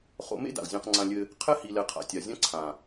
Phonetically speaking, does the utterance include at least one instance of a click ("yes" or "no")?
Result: yes